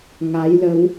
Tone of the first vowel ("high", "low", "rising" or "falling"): rising